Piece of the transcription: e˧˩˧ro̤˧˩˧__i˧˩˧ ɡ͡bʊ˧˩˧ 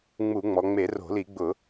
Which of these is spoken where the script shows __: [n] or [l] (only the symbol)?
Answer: l